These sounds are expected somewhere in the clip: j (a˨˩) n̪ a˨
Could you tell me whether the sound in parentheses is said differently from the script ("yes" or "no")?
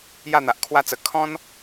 yes